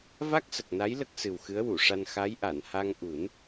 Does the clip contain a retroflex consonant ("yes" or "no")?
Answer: yes